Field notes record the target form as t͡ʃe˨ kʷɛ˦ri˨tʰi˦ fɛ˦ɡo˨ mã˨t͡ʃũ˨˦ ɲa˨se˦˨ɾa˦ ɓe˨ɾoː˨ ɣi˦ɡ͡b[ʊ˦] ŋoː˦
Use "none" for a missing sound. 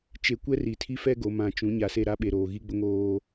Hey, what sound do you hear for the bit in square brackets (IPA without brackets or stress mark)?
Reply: ʊ˦